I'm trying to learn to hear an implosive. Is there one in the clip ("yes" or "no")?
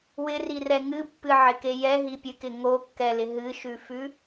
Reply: no